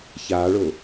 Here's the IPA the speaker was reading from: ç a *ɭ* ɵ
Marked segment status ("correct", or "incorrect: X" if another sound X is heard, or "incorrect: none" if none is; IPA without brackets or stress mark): correct